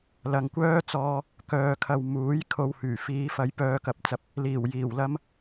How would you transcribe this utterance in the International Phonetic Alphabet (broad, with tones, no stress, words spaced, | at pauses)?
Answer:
lɐ˨ŋkʷœː˥t͡sɔː˧ | kœː˨kʰɐ˨w muː˨˥j kʰo˧whyː˨˩ fiː˨˧fɐ˨˧j pœː˧kɐ˧p̚t͡sɐ˨p̚ | liː˨˩w jiː˨˩wlɐ˥m